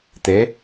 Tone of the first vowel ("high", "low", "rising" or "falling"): rising